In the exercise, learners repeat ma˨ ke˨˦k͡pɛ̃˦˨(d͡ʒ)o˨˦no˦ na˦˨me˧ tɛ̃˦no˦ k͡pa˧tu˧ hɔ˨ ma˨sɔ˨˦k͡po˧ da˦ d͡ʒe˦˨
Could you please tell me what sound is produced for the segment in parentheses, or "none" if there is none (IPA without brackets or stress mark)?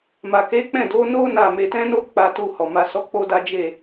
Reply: d